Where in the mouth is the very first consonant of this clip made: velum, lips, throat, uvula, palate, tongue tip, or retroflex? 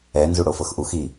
tongue tip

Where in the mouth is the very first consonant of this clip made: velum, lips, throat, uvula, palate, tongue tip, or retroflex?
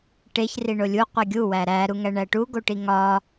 retroflex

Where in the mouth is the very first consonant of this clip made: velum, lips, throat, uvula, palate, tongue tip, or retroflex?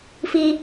lips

